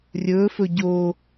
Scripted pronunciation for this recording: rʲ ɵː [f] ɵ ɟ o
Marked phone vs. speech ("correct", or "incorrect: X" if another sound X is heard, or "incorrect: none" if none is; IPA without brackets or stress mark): correct